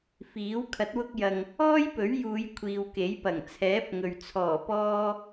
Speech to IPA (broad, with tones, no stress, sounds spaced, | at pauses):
f iː˨˥ w kʰ ɐ˨˥ t̚ w ʊ˧ k̚ j ɐ˨ ŋ | ɔː˥ j p ɵ˨˥ ɥ j uː˨˧ j kʷʰ iː˨ w k e˨˥ j p ɐ˨˩ ŋ t͡sʰ ɛː˨˥ p̚ ŋ ɵ˨ ɥ t͡sʰ ɔː˨˩ p ɔː˧